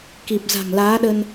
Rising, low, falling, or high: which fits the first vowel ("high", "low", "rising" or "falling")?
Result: low